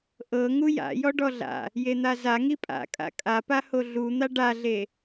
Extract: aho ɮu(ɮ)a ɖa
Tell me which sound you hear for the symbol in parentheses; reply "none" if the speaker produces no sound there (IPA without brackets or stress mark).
n̪